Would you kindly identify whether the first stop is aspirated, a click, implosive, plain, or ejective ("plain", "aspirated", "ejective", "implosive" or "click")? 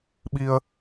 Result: implosive